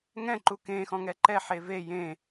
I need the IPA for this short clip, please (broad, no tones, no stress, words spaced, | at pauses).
ŋɛ̃ǃu kẽxɔ̃ŋɛ ǃɛħe ve jẽ